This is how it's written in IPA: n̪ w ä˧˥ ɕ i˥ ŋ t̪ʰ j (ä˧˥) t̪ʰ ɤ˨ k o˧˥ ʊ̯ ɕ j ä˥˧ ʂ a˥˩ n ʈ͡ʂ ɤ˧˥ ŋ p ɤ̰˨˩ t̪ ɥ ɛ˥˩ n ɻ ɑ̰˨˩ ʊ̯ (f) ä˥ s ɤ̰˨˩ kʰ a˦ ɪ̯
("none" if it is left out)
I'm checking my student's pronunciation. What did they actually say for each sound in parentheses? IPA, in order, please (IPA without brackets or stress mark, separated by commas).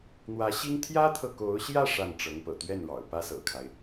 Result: ä˥, p